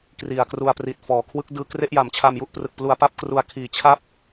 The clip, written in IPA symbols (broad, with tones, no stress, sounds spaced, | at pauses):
k r i˨˩ a̯ k r u˧ a̯ p r i˨˩ t̚ f ɔː˩˦ kʰ w ɯ˦˥ k̚ d ɯː˧ k r e˥˩ ʔ j a˩˦ m t͡ɕʰ a˧ m j u˦˥ ʔ p r ɯ˨˩ k̚ p l u˧ a̯ p a˥˩ p̚ k r u˧ a̯ kʰ iː˨˩ t͡ɕʰ a˥˩ p̚